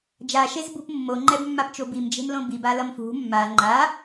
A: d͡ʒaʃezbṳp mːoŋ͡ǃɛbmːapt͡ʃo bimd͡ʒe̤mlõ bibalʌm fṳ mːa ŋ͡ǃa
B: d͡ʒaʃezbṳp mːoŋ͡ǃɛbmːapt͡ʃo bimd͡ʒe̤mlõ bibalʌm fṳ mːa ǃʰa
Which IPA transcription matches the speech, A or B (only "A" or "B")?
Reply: A